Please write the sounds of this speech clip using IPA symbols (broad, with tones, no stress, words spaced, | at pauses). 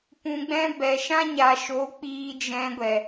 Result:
pũ˧ɡ͡bɛ̃˦ bɛ˨ʃã˦ ɲa˨ʃo˨˦ k͡piː˧d͡ʒɛ̃˧ɡʷɛ˨